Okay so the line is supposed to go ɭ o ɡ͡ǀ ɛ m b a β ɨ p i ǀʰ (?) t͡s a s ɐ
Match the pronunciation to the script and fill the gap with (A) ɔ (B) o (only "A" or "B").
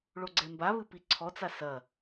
A